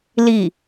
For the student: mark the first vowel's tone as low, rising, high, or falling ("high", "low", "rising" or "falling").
falling